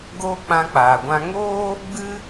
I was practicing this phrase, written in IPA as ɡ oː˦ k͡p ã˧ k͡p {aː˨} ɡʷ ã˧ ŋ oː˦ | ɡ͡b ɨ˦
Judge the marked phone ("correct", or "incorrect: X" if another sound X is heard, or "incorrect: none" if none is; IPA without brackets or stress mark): correct